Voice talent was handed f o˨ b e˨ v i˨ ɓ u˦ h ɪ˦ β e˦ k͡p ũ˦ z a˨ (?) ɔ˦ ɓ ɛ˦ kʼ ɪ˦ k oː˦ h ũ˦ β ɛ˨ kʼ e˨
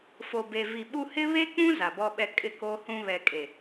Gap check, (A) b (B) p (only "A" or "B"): A